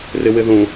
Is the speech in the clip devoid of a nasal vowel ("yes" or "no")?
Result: no